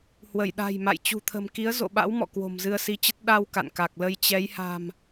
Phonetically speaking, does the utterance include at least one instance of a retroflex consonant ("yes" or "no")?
no